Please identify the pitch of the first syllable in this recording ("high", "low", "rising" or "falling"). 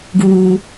low